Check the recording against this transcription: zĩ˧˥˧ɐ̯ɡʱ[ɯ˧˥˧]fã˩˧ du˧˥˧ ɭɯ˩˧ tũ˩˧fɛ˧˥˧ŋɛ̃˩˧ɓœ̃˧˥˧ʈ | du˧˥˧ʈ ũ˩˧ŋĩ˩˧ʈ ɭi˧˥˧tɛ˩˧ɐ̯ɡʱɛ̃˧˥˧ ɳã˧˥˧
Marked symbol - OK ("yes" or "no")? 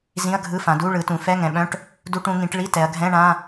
yes